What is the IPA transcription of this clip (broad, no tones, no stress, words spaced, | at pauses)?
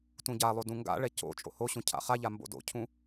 tũɟalˠo dũŋɡa̰ɭɛ co̰ t͡ʃʼo̰hoɕũ cʰa̰χaʎa mbo̰do̰cʰũ